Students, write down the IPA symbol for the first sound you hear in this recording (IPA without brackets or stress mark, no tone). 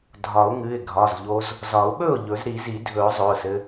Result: dʱ